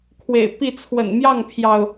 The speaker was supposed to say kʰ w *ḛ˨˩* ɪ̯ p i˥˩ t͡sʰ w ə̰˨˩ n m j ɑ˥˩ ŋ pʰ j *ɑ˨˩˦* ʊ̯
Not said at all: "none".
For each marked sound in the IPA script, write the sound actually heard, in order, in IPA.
ḛ˨˩, ɑ˩

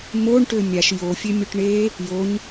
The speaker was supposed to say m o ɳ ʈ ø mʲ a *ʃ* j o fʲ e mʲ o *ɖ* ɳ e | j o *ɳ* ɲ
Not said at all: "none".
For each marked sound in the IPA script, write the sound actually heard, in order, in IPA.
ʃ, ʈ, none

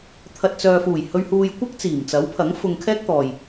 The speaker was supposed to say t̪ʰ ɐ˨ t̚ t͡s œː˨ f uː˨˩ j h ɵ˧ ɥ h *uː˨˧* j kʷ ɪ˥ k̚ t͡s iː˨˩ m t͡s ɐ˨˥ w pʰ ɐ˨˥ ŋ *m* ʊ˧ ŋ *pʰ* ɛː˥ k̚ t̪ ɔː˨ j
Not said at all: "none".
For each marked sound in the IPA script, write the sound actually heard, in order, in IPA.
uː˧, f, kʰ

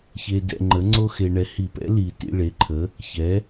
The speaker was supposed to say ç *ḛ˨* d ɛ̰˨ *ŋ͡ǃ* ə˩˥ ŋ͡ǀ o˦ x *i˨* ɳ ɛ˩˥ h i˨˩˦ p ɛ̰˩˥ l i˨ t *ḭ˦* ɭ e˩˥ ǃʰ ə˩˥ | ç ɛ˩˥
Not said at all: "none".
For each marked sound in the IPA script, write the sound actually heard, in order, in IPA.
e˨, ŋ͡ǃ, e˨, ḭ˦

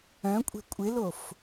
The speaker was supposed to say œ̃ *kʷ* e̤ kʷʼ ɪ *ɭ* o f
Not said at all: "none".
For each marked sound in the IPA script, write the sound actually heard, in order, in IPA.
kʷʼ, l

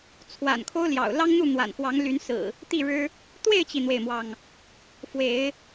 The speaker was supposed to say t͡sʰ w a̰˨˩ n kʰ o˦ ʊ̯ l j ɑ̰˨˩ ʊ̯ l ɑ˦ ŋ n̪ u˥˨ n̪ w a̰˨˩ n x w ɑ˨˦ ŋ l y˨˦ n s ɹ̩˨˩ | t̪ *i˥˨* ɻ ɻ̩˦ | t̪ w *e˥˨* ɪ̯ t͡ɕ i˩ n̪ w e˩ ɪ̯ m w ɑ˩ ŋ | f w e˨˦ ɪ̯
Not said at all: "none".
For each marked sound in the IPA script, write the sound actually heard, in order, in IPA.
i˥˨, e˥˨

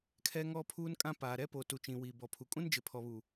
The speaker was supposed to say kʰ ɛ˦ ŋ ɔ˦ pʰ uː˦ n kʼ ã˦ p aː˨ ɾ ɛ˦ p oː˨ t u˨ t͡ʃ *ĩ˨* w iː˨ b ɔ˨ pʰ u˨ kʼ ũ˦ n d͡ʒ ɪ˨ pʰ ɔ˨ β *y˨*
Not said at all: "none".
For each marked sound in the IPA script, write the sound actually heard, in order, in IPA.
ĩ˨, u˨

